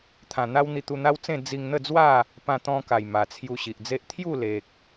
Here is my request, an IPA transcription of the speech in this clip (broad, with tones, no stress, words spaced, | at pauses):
t̪ʰã˨˩n̪a˦wn̪i˧t̪u˧ n̪a˦wt͡sẽ˥˧ d͡zi˧ŋ n̪ə˥˧d͡zwa˥˧ | pã˧t̪ɔ̃˧ka˨˩j ma˨˩t͡sʰju˧ɕi˨ʔd͡ze˦ʔ t̪ʰju˥˧le˨k̚